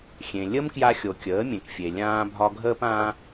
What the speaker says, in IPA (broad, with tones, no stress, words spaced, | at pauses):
xʲẽ˩ lʲə˥mkja˧xʲo˩ kʲəː˩˥mʲẽ˩kfʲe˩ lʲãː˧bʱɒ˧ ɡʱəː˧pãː˧